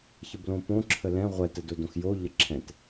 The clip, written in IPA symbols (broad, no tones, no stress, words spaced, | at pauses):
çəblõpõ ǁʰəlɛ̃ ʁʷɛ tədodõxjo ʎəǁʰɛ̃t